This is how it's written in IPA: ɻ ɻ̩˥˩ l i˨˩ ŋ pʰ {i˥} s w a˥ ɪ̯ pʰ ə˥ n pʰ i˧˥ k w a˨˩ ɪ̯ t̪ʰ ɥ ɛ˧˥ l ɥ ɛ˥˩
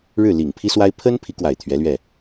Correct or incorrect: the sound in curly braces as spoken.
correct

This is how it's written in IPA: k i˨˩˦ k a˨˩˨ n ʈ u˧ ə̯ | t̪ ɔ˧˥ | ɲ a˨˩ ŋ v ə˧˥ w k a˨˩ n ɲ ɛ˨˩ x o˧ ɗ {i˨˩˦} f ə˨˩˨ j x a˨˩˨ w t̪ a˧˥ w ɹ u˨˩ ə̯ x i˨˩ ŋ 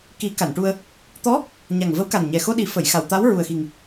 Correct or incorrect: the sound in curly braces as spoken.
correct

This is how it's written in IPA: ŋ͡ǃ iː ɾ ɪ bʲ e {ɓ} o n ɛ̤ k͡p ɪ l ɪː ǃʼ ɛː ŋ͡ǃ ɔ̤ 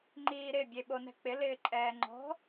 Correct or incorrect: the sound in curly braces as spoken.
correct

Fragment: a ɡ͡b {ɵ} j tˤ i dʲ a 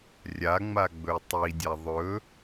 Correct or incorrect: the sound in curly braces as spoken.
correct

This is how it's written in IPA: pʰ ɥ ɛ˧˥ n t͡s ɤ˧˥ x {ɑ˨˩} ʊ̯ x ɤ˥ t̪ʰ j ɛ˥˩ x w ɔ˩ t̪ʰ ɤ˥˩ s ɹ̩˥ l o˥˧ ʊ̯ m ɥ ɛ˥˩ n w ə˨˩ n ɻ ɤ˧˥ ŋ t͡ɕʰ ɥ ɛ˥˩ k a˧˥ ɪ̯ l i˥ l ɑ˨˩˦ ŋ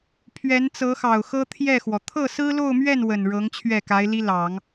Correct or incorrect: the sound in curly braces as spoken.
correct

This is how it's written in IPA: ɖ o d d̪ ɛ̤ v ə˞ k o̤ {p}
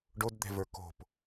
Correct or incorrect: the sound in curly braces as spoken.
correct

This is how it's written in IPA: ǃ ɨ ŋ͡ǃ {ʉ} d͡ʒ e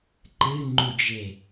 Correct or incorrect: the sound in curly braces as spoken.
incorrect: u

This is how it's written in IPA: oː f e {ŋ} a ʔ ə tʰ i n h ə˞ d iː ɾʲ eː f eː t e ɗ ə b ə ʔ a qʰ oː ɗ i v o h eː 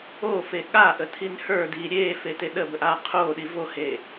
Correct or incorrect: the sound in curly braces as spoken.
incorrect: ɠ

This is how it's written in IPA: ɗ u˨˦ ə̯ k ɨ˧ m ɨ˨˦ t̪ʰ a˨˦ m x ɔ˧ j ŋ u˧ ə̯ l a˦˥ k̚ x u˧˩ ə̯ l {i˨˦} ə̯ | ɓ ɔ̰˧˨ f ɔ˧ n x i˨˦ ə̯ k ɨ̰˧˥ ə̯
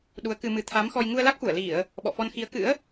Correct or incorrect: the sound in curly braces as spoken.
incorrect: i˧˩˨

